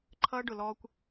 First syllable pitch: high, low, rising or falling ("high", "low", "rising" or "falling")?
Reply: high